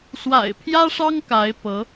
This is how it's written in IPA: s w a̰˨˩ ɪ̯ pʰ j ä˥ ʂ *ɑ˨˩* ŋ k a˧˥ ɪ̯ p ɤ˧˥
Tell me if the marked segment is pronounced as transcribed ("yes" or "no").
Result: no